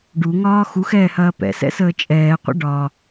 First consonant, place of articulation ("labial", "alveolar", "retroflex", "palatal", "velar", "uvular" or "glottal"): retroflex